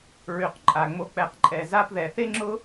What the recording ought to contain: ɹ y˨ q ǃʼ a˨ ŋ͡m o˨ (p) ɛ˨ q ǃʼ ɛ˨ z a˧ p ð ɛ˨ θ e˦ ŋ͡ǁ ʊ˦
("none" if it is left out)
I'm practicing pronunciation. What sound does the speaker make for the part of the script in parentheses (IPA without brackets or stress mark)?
k͡p